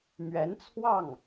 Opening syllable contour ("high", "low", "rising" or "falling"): rising